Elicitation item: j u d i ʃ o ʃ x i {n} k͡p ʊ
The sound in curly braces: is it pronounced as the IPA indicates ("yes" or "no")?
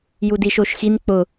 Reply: yes